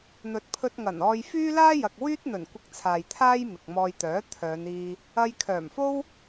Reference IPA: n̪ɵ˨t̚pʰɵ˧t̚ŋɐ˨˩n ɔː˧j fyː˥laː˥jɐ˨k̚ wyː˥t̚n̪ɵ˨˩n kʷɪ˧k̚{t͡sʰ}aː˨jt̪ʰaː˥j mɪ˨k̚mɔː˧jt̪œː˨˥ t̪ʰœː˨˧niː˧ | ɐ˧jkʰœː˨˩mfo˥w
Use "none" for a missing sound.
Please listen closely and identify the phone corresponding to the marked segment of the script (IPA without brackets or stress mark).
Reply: t͡sʰ